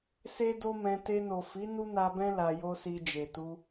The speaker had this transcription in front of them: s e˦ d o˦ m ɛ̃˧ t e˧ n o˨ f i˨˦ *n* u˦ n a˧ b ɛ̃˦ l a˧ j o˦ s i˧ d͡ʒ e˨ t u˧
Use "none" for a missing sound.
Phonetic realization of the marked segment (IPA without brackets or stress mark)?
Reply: n